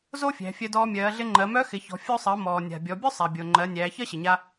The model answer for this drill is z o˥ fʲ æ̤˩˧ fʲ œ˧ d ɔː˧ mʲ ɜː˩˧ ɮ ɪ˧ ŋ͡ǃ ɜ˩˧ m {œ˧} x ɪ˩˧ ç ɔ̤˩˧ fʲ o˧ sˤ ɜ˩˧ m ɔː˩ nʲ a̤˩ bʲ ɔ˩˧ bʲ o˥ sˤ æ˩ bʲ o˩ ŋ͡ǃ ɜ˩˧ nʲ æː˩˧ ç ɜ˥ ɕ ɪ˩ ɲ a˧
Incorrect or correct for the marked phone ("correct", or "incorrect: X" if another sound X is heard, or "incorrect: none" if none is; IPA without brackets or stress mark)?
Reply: incorrect: œ˧˥